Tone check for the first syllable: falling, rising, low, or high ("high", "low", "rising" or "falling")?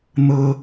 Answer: high